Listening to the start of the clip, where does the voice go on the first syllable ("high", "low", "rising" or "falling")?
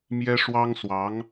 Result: high